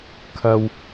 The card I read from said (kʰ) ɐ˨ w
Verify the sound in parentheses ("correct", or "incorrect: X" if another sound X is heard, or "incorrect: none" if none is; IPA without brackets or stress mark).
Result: correct